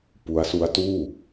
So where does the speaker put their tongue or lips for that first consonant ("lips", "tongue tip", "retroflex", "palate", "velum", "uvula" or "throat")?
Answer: lips